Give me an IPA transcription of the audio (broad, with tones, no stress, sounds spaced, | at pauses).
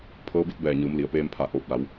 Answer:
pʰ ɤː˧˥ b i˧˥ t̚ b ɛː˧˩ ɲ ɯː˩˧ m l i˩ ə̯ p eː˧ m pʰ a˧˩ ʔ oː˧˩ p̚ l a˩˧ w